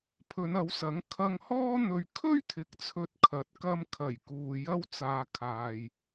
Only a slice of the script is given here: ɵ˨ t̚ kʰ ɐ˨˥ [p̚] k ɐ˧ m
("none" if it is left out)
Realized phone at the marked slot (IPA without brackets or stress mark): t̚